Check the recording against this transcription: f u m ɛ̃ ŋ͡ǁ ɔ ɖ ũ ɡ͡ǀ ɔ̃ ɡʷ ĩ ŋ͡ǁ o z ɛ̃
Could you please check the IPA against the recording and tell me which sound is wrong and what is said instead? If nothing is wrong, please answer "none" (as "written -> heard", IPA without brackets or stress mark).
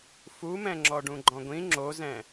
ɡ͡ǀ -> ɡ͡ǃ